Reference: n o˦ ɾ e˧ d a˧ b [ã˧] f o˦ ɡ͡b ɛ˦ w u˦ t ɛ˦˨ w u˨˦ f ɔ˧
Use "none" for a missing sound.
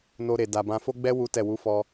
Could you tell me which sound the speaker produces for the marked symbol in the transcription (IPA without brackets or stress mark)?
ã˧